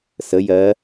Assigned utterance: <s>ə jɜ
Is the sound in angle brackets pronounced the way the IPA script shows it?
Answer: yes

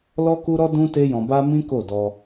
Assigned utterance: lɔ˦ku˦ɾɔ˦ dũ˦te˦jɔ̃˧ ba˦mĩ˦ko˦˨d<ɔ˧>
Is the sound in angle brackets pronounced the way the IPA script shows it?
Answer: yes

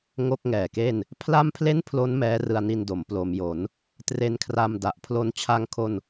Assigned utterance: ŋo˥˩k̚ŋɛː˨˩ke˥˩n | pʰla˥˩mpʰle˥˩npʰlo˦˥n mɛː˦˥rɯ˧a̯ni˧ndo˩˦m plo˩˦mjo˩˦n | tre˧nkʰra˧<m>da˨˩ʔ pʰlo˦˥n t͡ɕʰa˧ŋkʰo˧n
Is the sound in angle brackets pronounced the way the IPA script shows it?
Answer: yes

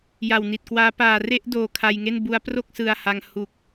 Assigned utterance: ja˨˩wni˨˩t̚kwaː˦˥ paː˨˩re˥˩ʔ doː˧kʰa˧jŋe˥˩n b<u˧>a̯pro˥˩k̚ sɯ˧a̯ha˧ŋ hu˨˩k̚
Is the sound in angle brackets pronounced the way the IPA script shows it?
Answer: no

